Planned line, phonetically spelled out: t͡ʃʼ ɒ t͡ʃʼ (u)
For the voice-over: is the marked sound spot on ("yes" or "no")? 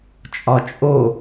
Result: no